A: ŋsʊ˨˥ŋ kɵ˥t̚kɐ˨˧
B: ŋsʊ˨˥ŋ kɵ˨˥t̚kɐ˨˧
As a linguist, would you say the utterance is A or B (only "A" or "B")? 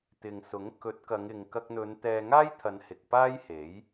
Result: B